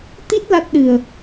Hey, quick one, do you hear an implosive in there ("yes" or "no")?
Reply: yes